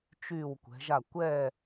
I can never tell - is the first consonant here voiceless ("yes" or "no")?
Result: yes